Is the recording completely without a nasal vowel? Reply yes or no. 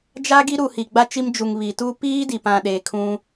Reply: no